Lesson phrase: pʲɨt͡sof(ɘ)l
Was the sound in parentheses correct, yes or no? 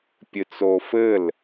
yes